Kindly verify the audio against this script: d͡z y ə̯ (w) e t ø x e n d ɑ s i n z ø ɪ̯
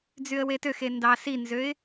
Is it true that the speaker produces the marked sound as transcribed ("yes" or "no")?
yes